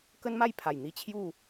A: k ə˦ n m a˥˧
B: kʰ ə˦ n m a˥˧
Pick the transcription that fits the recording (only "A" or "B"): A